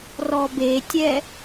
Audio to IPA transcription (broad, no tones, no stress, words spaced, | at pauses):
rɔbetʲɛ